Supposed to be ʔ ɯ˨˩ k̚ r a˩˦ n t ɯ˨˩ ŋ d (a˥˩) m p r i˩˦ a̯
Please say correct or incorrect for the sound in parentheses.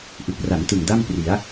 correct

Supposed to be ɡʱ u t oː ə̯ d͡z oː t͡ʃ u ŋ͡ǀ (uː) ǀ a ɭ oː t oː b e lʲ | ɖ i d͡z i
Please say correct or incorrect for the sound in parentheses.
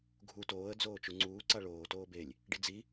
correct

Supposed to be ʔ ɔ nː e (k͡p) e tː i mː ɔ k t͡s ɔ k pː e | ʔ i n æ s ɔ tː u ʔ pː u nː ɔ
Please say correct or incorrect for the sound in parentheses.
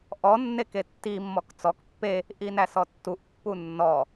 incorrect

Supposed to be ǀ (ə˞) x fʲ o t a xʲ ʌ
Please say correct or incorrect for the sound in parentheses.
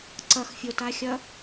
incorrect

